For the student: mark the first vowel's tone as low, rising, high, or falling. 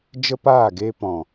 high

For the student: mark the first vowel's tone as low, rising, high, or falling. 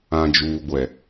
low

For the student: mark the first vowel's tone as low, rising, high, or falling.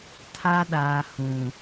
high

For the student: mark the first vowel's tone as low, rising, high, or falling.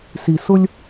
low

